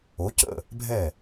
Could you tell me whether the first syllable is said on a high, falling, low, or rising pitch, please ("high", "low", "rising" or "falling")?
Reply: rising